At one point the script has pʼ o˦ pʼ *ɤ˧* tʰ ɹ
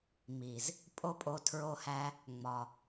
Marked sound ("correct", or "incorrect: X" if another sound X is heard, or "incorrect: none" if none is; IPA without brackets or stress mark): incorrect: o˧